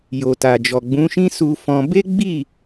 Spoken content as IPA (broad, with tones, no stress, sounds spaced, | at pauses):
j o˨ t a˨ d͡ʒ ɔ˨ ɡ͡b ũ˨˦ ʃ ĩ˦ s u˧ f ɔ̃˧ b e˦ ɡ͡b i˦˨